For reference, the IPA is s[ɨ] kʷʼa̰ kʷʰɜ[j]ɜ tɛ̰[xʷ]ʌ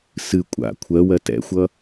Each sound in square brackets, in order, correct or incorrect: correct, incorrect, correct

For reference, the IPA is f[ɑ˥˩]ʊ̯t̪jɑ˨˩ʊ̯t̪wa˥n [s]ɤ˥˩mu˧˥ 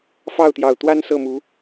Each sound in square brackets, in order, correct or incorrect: correct, correct

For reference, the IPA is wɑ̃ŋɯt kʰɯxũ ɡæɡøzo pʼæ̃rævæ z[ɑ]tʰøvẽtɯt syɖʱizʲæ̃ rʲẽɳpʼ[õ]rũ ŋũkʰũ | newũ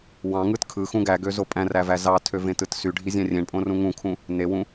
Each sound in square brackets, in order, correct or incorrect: correct, correct

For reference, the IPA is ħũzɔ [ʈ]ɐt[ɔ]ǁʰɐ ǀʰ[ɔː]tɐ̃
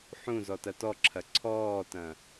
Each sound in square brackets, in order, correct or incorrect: incorrect, correct, correct

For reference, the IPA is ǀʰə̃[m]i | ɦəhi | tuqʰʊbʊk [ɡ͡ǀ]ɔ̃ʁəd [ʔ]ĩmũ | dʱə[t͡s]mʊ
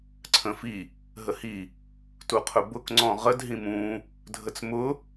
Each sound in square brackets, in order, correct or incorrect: incorrect, incorrect, incorrect, correct

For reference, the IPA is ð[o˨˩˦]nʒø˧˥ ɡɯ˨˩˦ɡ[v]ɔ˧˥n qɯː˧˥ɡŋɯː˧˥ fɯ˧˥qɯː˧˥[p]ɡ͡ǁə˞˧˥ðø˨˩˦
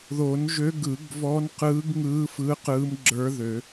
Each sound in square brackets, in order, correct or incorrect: correct, correct, incorrect

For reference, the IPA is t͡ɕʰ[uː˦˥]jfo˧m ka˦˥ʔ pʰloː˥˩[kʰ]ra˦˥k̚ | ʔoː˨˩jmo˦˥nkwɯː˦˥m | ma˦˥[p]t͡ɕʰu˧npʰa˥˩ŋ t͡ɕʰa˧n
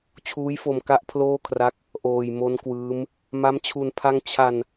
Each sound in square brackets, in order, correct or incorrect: correct, correct, incorrect

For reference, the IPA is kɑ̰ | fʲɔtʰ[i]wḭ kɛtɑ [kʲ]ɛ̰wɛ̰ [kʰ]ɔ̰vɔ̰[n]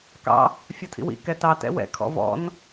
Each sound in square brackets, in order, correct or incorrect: incorrect, incorrect, correct, correct

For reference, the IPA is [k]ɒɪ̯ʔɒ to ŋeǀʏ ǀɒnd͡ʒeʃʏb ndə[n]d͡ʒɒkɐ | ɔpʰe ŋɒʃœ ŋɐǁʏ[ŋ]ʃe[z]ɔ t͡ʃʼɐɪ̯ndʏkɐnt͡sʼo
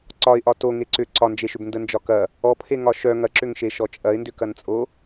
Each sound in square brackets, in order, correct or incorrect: incorrect, correct, correct, incorrect

